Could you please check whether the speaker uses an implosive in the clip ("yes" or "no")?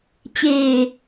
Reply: no